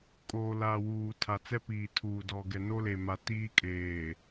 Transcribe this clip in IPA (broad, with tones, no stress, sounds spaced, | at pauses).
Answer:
kʼ oː˨ l a˨ w uː˨ tʰ a˨ t͡s ɛ˦ p iː˨ tʰ uː˨ d ɔ˨ ɡ ɛ˨ n o˦ l e˨ m a˦ t iː˦ kʼ eː˨